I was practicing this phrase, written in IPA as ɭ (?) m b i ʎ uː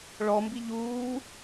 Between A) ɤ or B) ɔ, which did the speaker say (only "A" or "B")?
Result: B